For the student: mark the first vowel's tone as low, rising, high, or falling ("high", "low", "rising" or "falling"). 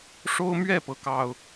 high